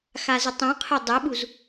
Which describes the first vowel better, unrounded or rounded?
unrounded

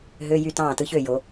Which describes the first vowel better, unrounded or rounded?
rounded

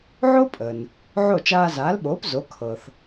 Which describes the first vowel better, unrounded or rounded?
rounded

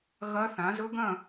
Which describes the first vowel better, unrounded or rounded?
unrounded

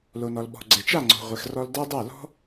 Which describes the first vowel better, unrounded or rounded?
rounded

